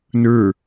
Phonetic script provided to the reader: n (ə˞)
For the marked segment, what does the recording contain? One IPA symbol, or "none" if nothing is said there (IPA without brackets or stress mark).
ə˞